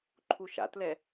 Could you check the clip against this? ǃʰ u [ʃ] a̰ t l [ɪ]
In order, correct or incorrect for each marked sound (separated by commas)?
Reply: correct, incorrect